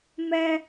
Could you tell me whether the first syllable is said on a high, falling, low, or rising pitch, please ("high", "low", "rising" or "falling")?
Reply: low